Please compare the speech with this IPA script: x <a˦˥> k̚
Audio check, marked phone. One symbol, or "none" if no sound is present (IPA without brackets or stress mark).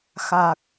a˨˩